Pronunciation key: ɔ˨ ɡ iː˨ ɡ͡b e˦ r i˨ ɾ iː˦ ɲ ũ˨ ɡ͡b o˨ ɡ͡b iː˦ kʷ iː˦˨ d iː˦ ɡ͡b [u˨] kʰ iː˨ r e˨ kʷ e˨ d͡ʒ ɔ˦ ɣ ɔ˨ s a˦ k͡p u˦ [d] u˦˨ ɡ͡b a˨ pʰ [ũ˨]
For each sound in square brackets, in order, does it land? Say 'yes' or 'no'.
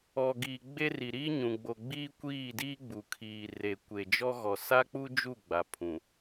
yes, no, yes

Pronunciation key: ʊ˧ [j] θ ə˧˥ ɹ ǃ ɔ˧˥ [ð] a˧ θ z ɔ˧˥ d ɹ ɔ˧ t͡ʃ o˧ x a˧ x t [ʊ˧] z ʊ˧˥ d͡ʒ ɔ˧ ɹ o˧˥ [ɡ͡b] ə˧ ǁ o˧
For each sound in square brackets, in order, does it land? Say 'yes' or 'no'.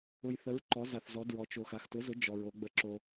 yes, no, no, yes

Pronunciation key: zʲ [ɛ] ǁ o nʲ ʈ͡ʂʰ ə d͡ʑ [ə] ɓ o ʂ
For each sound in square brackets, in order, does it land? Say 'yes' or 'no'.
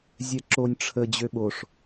yes, no

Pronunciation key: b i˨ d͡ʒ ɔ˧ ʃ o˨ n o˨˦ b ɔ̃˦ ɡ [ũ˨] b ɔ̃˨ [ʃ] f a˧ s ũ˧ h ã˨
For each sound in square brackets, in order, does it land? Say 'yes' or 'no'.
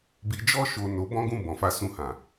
no, no

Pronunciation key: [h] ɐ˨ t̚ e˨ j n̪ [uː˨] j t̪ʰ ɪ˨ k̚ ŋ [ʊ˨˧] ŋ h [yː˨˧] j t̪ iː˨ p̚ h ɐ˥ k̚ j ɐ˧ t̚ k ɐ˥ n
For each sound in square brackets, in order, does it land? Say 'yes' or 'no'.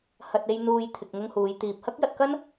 yes, yes, no, no

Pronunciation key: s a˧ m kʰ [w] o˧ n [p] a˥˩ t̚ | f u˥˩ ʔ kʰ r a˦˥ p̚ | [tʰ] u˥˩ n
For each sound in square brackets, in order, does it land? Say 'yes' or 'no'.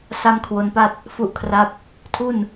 yes, yes, yes

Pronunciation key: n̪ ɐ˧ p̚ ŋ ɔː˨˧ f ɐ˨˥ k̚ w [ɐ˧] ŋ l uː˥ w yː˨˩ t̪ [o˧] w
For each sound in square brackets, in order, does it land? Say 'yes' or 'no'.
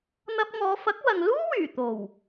no, no

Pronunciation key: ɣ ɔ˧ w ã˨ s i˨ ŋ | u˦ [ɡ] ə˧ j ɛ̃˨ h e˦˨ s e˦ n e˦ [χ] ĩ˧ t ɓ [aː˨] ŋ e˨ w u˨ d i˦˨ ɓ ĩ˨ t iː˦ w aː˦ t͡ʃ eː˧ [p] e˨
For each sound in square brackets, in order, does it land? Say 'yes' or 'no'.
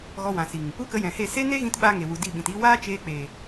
no, no, no, no

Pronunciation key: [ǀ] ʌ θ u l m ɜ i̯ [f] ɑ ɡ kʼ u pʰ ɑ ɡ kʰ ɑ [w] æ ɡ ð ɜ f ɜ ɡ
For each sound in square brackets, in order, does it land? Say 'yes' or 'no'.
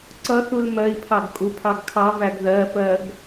yes, no, no

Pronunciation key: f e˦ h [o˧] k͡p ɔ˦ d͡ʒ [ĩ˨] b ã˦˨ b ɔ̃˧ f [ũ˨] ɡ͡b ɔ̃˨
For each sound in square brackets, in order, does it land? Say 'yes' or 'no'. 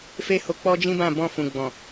yes, no, yes

